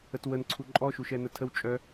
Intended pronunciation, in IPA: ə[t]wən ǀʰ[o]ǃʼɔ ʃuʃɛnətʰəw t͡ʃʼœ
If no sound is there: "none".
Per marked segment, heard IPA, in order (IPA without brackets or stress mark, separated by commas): t, u